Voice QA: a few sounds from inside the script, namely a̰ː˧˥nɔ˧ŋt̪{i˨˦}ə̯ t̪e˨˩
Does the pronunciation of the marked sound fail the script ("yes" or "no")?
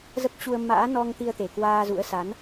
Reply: yes